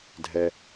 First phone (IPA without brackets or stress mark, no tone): dʱ